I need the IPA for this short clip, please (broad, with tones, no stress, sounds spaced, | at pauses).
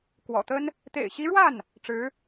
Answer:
k w ɔ̰˨˩ t̪ ə˥ n | t̪ ḛ˨˩ ɪ̯ ɕ i˧˥ ɻ w a˥˩ n | ʈ͡ʂ ɻ̩˧˥